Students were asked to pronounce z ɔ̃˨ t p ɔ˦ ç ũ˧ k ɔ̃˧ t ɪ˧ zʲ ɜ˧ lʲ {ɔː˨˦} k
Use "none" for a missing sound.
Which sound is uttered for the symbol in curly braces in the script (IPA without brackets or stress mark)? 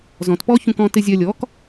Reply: ɔː˨˦